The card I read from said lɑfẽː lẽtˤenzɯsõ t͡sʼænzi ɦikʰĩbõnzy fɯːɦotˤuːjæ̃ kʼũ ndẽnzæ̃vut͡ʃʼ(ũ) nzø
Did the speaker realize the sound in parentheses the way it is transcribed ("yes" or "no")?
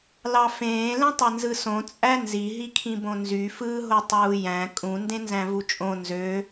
no